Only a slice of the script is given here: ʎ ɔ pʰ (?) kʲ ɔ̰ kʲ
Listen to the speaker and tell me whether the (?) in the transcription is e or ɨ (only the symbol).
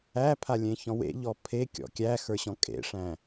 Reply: e